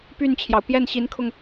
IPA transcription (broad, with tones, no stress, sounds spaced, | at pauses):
p y˥˩ n t͡ɕʰ j ɑ˩ ʊ̯ p j ɛ˥˩ n ɕ i˧˥ n kʰ ʊ˧ ŋ